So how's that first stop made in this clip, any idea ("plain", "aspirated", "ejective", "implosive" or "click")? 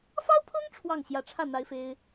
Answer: aspirated